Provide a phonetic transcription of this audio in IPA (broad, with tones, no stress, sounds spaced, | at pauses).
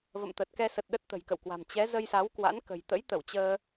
v ə̰˧˨ m t̪ ə˨˩ t̚ k ɛ˧ s ə˨˩ t̚ ɗ ə˦˥ t̚ t̪ ə̤˨˩ j k ə̰˧˨ w k w a̤˨˩ m t͡ɕ ɛ˨˦ z ə˧ j s a˨˦ w k w a̰˧˥ n k ə̤˨˩ j t̪ ə̰˧˥ j t̪ ə˧˩ w t͡ɕ əː˧